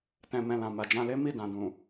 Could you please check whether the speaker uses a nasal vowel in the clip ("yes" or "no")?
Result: yes